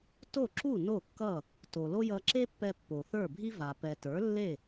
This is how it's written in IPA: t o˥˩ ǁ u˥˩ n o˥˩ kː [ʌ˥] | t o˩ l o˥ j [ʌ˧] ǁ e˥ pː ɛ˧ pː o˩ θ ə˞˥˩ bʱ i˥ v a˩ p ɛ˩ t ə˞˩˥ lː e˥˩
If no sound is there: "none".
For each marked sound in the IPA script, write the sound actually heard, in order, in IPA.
ʌ˥˩, ʌ˧

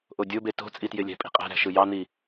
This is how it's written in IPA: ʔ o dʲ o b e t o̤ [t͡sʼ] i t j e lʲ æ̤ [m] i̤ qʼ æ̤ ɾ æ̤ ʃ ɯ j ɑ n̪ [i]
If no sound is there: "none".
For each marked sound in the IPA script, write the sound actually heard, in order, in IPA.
t͡sʼ, pʼ, i

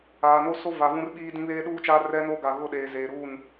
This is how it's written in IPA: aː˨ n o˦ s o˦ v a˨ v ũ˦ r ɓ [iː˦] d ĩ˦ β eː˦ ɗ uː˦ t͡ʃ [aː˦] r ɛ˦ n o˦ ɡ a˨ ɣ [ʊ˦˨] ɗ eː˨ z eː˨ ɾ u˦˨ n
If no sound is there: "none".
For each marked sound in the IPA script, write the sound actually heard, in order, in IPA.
iː˦, aː˦, ʊ˦˨

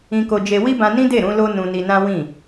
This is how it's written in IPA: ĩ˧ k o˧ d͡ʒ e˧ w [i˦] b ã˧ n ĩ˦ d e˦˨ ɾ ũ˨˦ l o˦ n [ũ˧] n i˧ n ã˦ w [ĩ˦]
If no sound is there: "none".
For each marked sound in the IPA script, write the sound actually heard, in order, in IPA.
i˦, ũ˧, ĩ˦˨

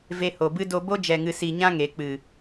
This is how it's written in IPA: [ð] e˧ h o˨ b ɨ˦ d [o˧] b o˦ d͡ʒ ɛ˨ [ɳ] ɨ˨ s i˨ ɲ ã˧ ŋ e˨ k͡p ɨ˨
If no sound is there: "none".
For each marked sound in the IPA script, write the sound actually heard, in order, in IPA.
v, o˧, ŋ

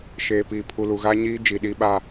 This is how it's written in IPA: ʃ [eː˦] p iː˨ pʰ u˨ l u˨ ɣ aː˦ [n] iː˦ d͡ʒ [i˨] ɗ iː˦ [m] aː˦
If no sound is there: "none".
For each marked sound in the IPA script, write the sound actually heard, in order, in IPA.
eː˨, ɲ, i˨, ɓ

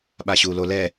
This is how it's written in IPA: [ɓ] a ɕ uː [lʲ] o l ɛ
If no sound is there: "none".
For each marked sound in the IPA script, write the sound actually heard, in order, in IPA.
ɓ, l

